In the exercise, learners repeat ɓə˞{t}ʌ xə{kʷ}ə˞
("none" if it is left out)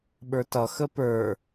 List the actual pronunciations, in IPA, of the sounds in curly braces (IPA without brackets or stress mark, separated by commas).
t, p